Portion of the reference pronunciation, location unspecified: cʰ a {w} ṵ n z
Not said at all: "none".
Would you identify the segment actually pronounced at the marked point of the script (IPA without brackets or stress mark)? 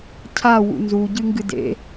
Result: w